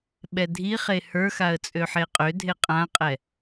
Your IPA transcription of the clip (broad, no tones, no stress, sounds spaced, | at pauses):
ɓ ɛ dʱ i χ e h ə˞ x a ə̯ t͡sʼ ø ħ e qʼ ø dʱ e qʼ ã qʼ ɛ